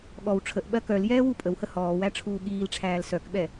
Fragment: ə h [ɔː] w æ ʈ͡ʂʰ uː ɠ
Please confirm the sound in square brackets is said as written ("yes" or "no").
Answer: yes